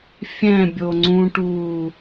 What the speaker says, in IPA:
fʲ ɛ̃ bʲ o ŋ͡ǀ ũ ʈ uː

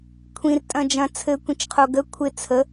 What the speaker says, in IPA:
kʷʰ ĩ r tʼ ɐ̃ d͡ʒ ɐ̃ t͡sʰ ɘ kʷ ĩ t͡ʃ qʰ o ɡ ə kʷʰ ɪ t͡sʰ ə

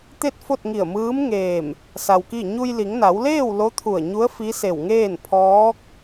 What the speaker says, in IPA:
t̪ e˥˨ t̚ f o˥˨ t̚ ŋ i˧˩ ə̯ m ɯː˧˥ m ŋ eː˧˩ m | s a˧ w k i˥˨ ɲ u˧ j l i˩˧ ŋ n a˩˧ w l eː˥˨ w l o˧˥ t̪ʰ u˧˩ ə̯ ɲ u˧˥ ə̯ f i˧˥ s e˧˩ w ŋ eː˥˨ n pʰ ɔː˧˥ k̚

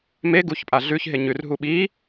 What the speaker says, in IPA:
m e ɡ u ç pʼ a ɮ ʉ ç ɦ e ɲ ʉ r ɦ u ɓ i

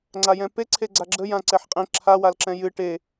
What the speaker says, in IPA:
ŋ͡ǀ a j ɛ̃ p e ǀʰ e ɡ͡ǀ a ɡ͡ǁ ə j ã ǀ ɛ ħ qʼ ẽ ǁʰ a w a l ǁ ɛ̃ j ɨ ʈ e

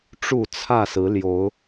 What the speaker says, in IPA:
ʈ͡ʂ u˥˨ t͡sʰ ä˥˨ s ɹ̩˨˦ l j o˨˦ ʊ̯

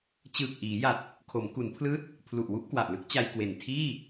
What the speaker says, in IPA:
t͡ɕ ɯː˨˩ k̚ ʔ iː˩˦ j a˨˩ t̚ | kʰ o˩˦ m k u˩˦ n pʰ l ɯː˦˥ t̚ | pʰ l u˨˩ ʔ w u˥˩ ʔ k w a˨˩ ʔ l ɯ˦˥ k̚ t͡ɕ a˧ j k w e˨˩ n tʰ iː˥˩

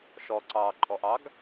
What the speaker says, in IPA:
ʃ ɔ ǀ ɑː ǃʼ ɔ ʔ ɑ ɡ

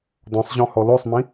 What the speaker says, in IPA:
d ɔ̃ sˤ ʑ ɔ̃ h ɔ l o sˤ m ĩ

